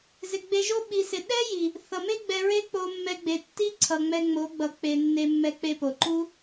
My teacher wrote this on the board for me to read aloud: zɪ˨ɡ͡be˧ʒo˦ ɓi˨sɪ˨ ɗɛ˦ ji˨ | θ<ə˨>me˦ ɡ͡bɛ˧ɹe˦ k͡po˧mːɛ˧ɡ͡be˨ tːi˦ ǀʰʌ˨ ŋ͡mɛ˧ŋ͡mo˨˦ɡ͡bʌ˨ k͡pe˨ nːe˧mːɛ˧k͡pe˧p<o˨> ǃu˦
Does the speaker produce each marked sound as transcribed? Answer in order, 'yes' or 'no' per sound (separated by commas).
no, yes